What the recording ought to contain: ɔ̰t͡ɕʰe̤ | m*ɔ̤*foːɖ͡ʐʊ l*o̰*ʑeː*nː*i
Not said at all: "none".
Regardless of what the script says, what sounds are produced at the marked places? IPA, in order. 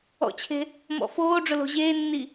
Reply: ɔ̰, o̤, nː

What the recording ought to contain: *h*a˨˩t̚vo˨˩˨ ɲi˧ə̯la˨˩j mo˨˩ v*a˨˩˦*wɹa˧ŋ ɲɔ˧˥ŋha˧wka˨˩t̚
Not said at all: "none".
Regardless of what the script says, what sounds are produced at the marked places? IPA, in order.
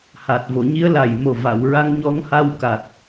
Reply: h, a˨˩˨

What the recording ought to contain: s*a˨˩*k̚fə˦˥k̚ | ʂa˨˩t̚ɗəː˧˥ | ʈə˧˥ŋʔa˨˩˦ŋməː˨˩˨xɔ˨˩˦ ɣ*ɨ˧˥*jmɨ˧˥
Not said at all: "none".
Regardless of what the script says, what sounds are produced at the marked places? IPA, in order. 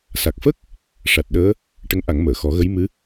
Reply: a˨˩, ə˧˥

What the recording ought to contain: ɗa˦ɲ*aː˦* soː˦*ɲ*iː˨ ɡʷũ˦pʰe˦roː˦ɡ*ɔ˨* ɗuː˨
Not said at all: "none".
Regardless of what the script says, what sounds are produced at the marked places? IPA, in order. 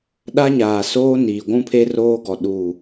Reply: aː˨, n, ɔ˨

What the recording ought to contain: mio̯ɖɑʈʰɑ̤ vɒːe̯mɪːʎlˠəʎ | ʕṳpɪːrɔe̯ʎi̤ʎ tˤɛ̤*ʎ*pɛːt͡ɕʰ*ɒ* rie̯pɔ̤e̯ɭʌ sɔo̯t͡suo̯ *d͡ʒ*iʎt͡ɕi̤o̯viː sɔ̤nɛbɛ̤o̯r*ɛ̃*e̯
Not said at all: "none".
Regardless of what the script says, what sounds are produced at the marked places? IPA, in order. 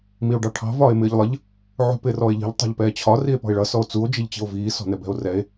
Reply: ʎ, ɒ, d͡ʒ, ɛ

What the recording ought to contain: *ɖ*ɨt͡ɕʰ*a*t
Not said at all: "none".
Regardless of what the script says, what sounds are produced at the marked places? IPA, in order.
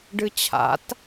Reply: ɖ, a̰

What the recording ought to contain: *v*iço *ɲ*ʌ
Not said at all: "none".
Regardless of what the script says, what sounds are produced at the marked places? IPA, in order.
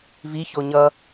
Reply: v, ɲ

